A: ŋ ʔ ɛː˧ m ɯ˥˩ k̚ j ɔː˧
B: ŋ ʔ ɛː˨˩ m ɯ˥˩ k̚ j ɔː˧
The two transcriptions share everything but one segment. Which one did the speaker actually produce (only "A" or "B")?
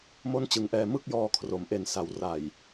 A